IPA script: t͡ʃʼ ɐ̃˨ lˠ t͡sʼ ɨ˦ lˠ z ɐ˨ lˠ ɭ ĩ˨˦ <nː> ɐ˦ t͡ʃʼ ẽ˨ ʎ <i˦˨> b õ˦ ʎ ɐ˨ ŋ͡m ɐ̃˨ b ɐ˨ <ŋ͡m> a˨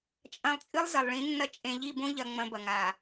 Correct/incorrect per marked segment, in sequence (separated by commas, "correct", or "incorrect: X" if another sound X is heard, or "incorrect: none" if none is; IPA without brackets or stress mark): correct, correct, incorrect: ŋ